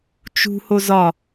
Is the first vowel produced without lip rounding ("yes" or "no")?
no